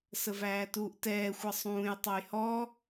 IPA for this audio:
səvæːtuːʔtɛː xʷʌsˤũːj tˤʌjhɔ

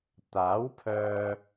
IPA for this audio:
t̪aː˨˥wpʰœː˧

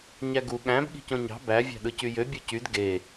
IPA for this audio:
ɲæɡu ɠæ̃b ɠi̤cõɲɑ̤ bæ vʲɑ̤ɗɯcyjø bʲocyd ɡe

